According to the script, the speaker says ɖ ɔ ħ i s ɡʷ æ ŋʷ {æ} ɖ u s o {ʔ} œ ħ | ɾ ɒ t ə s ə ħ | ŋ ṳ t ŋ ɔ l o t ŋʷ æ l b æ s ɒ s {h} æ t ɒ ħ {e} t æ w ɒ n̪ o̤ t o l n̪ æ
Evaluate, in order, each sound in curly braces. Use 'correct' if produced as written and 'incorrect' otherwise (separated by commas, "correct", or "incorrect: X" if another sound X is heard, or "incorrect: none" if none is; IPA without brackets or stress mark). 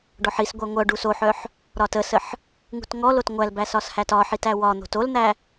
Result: incorrect: œ, incorrect: ħ, correct, incorrect: i